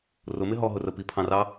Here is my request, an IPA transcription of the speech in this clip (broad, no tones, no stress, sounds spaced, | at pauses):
r ʊ m ɪ ɦ ɔ ɦ ʊ r ə p i pʰ ɑ̃ r ɑ